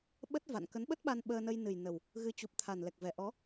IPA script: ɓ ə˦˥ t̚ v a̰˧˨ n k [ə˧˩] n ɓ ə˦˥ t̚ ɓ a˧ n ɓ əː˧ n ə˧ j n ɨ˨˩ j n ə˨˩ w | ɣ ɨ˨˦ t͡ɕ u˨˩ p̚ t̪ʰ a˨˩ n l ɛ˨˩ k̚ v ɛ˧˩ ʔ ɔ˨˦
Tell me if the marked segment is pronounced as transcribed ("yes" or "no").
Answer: no